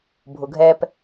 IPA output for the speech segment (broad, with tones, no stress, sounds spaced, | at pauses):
bʱ ʊ˩ ɡʱ ɛː˧ p